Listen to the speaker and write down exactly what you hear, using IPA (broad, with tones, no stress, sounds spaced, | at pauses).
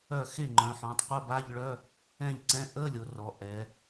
œ˥˩ x e˥˩ ŋ͡ǃ œ̃˩˧ ħ ɔ̃˩˧ tˤ qʷ ə˧˥˧ b a˧˥˧ ʎ ɭ œ˧˥˧ | ɛ̃˥˩ ʎ ǀ ɛ̃˧˥˧ ʔ ə˧˥˧ lʲ o˩˧ r ɔ˩˧ ʔ ɛ˩˧